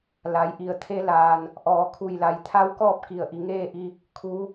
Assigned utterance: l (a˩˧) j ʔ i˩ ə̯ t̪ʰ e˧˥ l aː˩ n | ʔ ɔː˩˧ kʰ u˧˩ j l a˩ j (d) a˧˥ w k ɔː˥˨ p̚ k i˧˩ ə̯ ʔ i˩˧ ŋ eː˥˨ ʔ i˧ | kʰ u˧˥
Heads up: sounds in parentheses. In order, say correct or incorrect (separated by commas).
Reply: correct, incorrect